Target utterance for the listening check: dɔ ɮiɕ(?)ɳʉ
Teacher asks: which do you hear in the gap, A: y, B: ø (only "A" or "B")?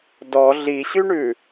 A